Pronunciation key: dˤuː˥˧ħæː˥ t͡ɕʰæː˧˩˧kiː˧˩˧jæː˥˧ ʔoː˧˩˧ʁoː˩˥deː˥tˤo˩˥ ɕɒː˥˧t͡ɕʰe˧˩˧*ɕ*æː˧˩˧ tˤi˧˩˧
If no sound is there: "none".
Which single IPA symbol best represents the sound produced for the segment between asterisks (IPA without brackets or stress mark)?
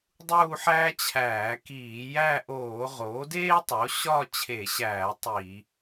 ɕ